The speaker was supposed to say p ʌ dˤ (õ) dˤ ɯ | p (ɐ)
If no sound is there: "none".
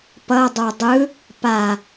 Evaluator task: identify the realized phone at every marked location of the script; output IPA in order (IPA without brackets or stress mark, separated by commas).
o, a